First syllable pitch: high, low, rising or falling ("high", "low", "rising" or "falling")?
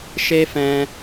low